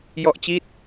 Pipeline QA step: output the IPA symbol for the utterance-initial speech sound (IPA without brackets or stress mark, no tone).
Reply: j